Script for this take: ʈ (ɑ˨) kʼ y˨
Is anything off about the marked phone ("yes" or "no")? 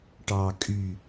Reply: no